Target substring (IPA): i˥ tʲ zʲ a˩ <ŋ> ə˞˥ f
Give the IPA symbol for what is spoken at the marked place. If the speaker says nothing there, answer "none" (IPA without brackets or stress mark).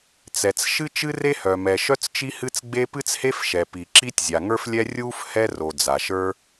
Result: ŋ